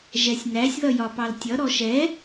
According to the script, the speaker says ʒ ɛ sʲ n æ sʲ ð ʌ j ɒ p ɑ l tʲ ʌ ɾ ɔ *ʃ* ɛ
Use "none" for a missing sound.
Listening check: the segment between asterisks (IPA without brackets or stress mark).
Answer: ʃ